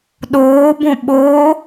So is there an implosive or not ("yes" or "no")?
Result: yes